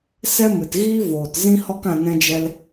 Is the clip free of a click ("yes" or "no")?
yes